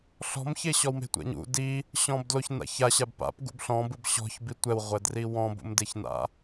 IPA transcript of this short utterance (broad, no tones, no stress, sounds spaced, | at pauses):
ɬ ɔ̤ m ç e ɕ ɔ w m e̤ tʷ ɛ̰ ɲ ṵ d i | ɕ ɔ̃ b d l o ç n a̰ ç a ɕ a b p a̰ p ɡ ṵ b ɬ ɔ̃ b ɯ b ɕ ɔ̤ ç b i tʷ ɛ w ʁʷ ɛ d r i w ɔ̃ b ṵ m d e ç n a̰